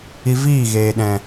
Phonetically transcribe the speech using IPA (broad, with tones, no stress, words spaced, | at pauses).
i˧viː˦˨ɣeː˨ɗɛ̃˨